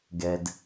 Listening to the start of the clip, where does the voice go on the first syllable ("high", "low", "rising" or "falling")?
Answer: low